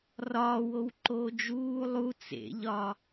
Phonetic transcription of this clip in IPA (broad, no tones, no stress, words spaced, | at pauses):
rɒːwowǃoː d͡ʒuː lˠu t͡sḛʎɒ